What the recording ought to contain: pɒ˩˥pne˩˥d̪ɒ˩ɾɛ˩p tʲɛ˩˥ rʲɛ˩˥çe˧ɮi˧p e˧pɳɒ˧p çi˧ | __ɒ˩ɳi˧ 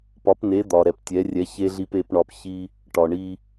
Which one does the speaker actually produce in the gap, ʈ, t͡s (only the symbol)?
ʈ